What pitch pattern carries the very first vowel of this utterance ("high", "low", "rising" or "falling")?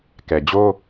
low